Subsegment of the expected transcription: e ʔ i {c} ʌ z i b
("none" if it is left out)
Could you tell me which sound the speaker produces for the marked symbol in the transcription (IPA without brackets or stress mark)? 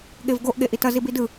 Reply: t